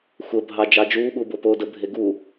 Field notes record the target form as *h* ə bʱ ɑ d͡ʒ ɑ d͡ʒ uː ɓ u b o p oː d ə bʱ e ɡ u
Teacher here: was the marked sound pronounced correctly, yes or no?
no